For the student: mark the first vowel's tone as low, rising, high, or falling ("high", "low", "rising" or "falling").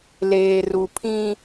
low